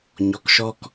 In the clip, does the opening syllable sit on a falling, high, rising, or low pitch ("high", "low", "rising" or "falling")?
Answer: rising